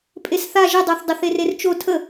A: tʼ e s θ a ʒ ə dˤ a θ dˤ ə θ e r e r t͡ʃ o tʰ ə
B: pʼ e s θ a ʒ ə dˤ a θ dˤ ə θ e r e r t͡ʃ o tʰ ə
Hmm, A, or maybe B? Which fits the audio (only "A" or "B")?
B